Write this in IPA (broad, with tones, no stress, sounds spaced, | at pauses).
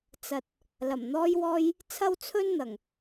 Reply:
t͡s ɐ˨ t̚ | l ɐ˨˩ m n̪ ɔː˥ j w ɔː˥ j | t͡sʰ ɐ˥ w t͡sʰ ɵ˥ n n̪ ɐ˨˩ ŋ